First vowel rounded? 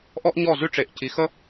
yes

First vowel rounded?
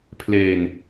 no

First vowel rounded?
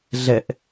no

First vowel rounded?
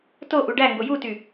yes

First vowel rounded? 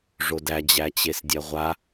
yes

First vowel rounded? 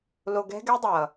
yes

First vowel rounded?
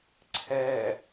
no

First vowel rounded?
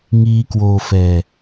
no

